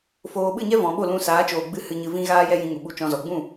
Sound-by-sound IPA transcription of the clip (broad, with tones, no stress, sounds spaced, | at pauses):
f oː˨ ɓ ɨ˦˨ ɲ ɛ˦ v ɔ̃˨ ɓ o˦˨ l ũ˧ s aː˨˦ t͡ʃ oː˨ ɡ͡b ɨ˧ h ɨ˨ ɲ ɨ˨ v ĩ˧ ɣ aː˦ j ɛ˦ j ĩ˧ ŋ u˨ ɓ u˧ t͡ʃ ɔ̃˧ z ɔ˨ ɡ͡b ũ˦˨